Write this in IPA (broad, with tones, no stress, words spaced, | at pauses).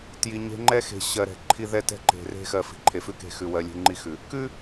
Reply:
tji˨ɲe̤˦ ŋ͡ǃɛ˦xe̤˨ ɕɜ˨ɾɛ̤˨ǃʰi˦ ðɛ˦tɛ̤˦ǃe̤˨ re̤˦xɜ˨ fi̤˨ǃʰe˨ fʉ˦ke̤˦˨xʉ˨wɜ˨ lʲe̤˦ŋ͡ǃi˦xʉ˨ | kʉ˦